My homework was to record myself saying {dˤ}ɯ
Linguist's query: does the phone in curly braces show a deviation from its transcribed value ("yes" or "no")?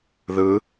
yes